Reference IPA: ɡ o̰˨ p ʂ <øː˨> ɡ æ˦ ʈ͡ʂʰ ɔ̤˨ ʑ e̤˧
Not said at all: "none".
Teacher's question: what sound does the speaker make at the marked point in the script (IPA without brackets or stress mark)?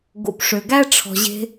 ø˨